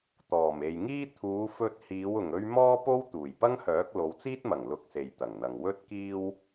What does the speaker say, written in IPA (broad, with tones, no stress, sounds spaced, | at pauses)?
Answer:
t̪ ɔː˨˩ m e˨ j ŋ iː˥ t̪ʰ uː˨˧ f ɵ˧ t̚ h iː˨˧ w ʊ˨ ŋ ɵ˥ ɥ m ɔː˥ p o˥ w t̪ uː˨˩ j p ɐ˥ ŋ h œː˨˥ k̚ l o˨˧ w t͡s iː˥ t̚ m ɐ˨˩ ŋ l ʊ˧ k̚ s e˨ j t̪ ɐ˨˩ ŋ n̪ ɐ˨ ŋ w ɵ˥ t̚ k iː˥ w